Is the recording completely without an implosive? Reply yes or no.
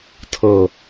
yes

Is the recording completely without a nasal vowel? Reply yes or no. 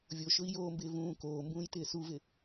no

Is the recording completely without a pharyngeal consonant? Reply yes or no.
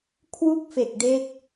yes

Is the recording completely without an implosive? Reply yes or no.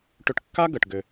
yes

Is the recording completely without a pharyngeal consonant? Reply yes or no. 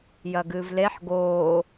no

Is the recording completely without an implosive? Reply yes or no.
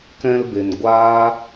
yes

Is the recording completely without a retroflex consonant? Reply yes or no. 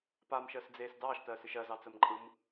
yes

